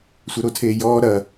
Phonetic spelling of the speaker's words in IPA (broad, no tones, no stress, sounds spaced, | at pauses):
sʷ œ ɾ o tʰ eː j ɔː ɾ ɐ